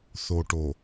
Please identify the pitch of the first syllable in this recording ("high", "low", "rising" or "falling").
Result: low